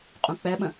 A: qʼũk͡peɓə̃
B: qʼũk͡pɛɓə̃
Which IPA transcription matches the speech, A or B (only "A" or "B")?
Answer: B